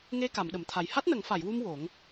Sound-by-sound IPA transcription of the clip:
ŋ e˧ k a˨˩˨ m ɗ ə˨˩˨ m t̪ʰ a˨˩ j h a˦˥ t̚ n ə˨˩˦ ŋ f a˨˩˨ j w u˧ m w o˨˩˦ ŋ

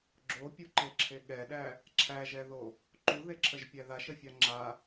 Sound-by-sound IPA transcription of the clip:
ɡ͡ǁ o pʲ u ǃ e ǁʰ e ɠ ɛ ɗ æ | ǁʰ æ ʒ ɛ ð o | ǃ u ð e ǁʰ ə ʒ pʲ æ ð a ʃ ə fʲ a ŋ͡ǁ a

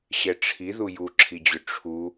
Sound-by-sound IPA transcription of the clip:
ɕ ɛ ʈ͡ʂʰ i ð u j u ǁʰ i d͡ʑ ʏ ʈ͡ʂʰ u

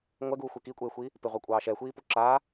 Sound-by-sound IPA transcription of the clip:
ŋʷ ɛ ɡ uː xʷ e k i kʷʼ eː xʷ iː | p ɪ ʁʷ ɛ kʷʼ ɑː ʃ ɛ xʷ iː p u ǁ aː

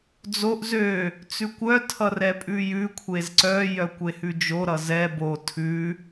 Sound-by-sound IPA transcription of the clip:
d͡z o ʔ z ø | t͡s ʉ kʷ œ tʰ ʌ r ɛ pʼ ʉ j ʉ kʷʰ e z ǀ œ j œ kʷ e h ʉ d͡ʒ o ɾ ʌ z ɛ b o tʰ ʉ

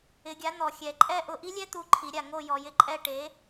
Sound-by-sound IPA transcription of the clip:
ɪ˨˩˦ ɡʲ a˨˥ n̪ ɔ˨˩ xʲ ɛ˨˩ ǃʼ ɛ˥ ʔ ʊ˦˨ ʔ i˥ lʲ ɛ˥ t̪ u˦˨ ǃʰ i˨˩˦ ɾʲ a˨˩ ŋ o˦˨ j ɔ˨˩ j ɪ˦˨ ǃʼ ɛ˦˨ ʈ e˨˥

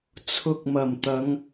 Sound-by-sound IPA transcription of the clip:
t͡sʰ ʊ˧ k̚ m ɐ˨˩ m t̪ ɐ˨˧ ŋ

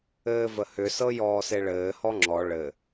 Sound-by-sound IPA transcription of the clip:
ɘː v ə h ʏ s ɤ j ɔː s e ɭ ɘː h ɔ ŋ͡ǁ ɔ ɭ ɘ

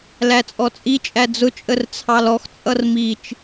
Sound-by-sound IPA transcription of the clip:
l æ t͡sʼ ɔ t͡sʼ i t͡ʃʼ æ d͡z ʊ t͡ʃʼ ə r t͡sʰ ɑ l ɔ x t͡sʼ ʌ r m i t͡ʃ

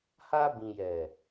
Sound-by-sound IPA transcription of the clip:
h a˧ b ĩ˨ j ɛ˨

